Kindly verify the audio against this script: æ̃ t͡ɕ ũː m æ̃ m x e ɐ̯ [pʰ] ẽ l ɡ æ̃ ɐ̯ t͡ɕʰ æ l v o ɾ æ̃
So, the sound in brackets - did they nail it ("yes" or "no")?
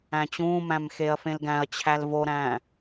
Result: no